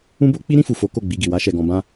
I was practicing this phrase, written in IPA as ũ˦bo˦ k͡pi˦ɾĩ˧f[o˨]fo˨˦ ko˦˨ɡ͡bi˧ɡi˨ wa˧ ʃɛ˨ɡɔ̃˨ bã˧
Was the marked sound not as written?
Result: yes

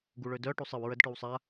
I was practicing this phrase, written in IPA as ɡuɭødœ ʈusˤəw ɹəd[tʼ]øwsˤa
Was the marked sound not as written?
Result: yes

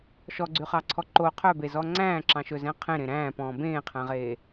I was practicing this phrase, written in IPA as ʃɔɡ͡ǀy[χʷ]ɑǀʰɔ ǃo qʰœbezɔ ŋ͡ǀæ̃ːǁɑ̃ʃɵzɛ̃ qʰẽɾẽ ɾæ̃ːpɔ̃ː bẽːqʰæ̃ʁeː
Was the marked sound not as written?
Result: yes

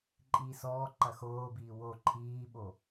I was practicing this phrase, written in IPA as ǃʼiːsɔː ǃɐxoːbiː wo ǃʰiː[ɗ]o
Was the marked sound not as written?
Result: yes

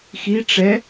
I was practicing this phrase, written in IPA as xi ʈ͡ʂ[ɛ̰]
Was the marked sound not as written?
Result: yes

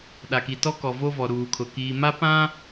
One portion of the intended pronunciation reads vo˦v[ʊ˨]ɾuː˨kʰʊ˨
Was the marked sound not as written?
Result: yes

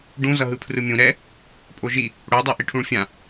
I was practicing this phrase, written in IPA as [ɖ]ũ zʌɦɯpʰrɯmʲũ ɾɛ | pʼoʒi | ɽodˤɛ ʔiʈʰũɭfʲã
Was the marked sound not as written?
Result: no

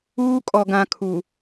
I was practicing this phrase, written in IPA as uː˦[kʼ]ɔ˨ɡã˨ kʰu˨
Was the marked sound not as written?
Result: no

